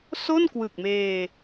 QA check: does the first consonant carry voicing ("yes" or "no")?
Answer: no